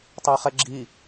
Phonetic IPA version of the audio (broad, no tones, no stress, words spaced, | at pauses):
tˤɛχɛɡ͡ǁi